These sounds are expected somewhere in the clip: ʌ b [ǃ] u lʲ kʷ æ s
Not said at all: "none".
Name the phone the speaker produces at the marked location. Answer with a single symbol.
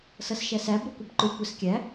ǃ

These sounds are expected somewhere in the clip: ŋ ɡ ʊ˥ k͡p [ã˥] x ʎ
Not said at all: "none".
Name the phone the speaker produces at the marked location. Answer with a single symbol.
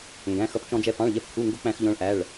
æ̃˥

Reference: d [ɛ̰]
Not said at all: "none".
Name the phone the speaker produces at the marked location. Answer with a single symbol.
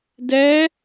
ɛ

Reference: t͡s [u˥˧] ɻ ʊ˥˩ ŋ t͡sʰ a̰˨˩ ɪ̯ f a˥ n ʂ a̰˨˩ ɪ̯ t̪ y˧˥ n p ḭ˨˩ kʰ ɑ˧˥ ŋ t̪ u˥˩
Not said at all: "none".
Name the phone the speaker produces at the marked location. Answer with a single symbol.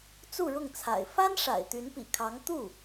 u˥˧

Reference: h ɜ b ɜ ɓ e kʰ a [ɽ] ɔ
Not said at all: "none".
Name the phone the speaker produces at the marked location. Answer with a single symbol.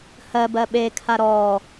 ɾ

